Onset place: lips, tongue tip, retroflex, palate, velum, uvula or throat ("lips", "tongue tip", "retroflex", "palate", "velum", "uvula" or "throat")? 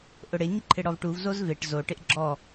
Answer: throat